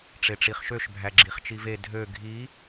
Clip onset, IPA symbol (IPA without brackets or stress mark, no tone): ʈ͡ʂ